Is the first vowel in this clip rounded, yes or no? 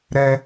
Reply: no